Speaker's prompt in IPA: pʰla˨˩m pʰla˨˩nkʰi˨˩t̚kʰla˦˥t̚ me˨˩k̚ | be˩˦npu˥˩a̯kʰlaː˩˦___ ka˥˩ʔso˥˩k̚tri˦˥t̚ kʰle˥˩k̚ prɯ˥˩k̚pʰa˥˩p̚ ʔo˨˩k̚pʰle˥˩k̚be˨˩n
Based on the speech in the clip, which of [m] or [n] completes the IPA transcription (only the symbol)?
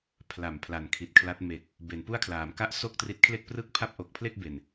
m